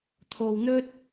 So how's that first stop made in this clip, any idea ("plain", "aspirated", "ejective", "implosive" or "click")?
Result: aspirated